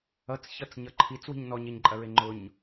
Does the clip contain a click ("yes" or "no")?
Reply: yes